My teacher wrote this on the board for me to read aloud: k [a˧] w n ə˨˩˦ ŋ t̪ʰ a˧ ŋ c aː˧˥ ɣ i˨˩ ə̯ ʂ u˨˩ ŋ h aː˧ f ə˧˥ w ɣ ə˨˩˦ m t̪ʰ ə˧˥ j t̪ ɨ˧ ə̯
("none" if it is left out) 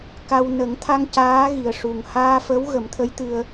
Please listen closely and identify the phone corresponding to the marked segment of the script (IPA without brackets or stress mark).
a˧